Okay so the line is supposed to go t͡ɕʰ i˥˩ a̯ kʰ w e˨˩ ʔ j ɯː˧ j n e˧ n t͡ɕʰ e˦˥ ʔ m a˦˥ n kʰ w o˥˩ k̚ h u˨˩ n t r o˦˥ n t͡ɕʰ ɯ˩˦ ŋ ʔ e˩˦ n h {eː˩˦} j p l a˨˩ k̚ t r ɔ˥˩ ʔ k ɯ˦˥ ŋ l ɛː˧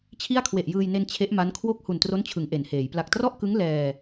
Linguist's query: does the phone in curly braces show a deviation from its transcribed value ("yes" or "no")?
no